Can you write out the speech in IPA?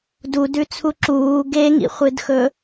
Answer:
dudʉt͡sʰu ǁuː ɡeŋḭχʷɨdxɵ

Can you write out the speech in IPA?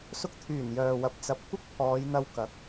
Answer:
sʊ˧k̚t̪ʰyː˨˩n jœː˨wɐ˨˥p̚ t͡sɐ˨p̚ kʷɪ˥k̚pʰɔː˨˧jn̪ɐ˧wkɐ˨˥k̚

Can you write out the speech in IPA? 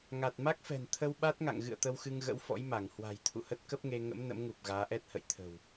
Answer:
ŋa˨˩t̚ma˦˥k̚fɛ̤˨˩n t̪ʰə˧wɓa˦˥t̚ŋa̰˧˨ŋɣɨ̰˧˨ə̯ t̪ə˧wxɨ˧ŋɣə̰˧˥wfɔ̰˧˥j ma˧˩ŋhwa̤˨˩j t̪ʰṵ˧˨hə˦˥t̚kə˦˥p̚ŋe˧ ŋə̰˧˥m nə̰˧˥mŋu˨˩p̚ ɣaː˨˦ʔɛ˦˥t̚hə̰˧˨jt̪ʰə̤˨˩w

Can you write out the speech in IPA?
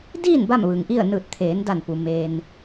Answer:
diː˥˨n ba˥˨mʋɯː˩ŋʔi˥˨ə̯ nɯː˧˩t̚t̪ʰeː˩˧nda˧˩npu˩ meː˩n

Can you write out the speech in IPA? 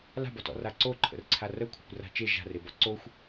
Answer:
la̤bɔtɔ̰ raǀoǃʰə̰rǀʰa rəkʷʰa̤kʷra̤ t͡ʃe ʒa̤rebɔ ǀoxʷ

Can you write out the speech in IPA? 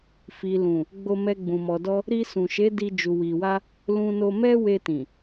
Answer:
fi˨ lũ˨ | ɡ͡bo˧mɛ˧ɡ͡bũ˨ mɔ˨dɔ˧ | ɾi˧sũ˨ʃe˨˦ di˧ d͡ʒu˨wi˨wa˧ | lũ˧no˧ mɛ˦we˧tĩ˨

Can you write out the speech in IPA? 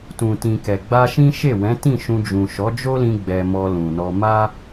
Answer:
tũ˨ tĩ˨ kɛ˨ ɡ͡ba˧ʃĩ˦ ʃe˦˨wɛ̃˨˦ tĩ˦˨ʃũ˧d͡ʒũ˨ ʃɔ˨˦d͡ʒo˦lĩ˧ ɡ͡bɛ˧mɔ˧lũ˨nɔ˧ ma˦

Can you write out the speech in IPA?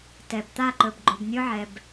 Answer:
tɛ˨b t̪a˦˨ǃɵ˨bɡ͡ǃo˨b nʲɵ˦ʕɛ˨b

